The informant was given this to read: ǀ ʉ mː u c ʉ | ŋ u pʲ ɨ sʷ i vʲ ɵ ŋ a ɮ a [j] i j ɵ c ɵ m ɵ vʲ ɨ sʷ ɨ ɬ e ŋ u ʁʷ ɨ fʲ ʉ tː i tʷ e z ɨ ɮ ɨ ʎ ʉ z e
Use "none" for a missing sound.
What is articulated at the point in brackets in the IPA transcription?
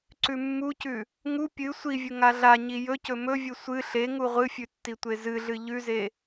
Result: ɲ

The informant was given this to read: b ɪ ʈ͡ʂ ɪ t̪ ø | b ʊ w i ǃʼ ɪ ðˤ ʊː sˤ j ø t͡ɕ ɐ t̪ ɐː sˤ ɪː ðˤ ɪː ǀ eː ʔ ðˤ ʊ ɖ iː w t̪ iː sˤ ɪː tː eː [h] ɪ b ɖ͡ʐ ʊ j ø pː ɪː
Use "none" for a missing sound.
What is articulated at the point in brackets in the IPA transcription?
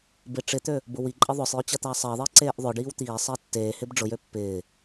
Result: h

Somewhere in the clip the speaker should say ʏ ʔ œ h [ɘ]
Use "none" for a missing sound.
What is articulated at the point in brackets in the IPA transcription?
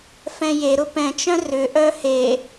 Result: e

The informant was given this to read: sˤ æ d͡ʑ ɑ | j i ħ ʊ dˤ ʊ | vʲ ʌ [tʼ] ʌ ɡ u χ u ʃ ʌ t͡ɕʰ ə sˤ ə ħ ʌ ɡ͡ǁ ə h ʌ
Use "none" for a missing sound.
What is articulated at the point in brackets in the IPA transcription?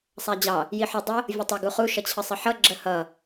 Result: tˤ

